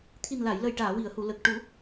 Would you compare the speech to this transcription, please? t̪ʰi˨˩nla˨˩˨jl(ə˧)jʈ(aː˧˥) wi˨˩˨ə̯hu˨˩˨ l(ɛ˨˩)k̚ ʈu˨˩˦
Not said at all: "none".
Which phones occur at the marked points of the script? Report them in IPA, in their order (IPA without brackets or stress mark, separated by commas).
ə˨˩, aː˨˩˨, ə˨˩